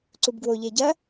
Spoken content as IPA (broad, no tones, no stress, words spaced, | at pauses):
ǀubɡwoʎe ɟɐ